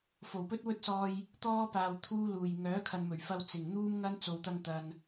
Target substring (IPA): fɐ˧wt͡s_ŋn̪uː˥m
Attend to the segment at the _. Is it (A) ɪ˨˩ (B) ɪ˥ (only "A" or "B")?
A